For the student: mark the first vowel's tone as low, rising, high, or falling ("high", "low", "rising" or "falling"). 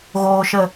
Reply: low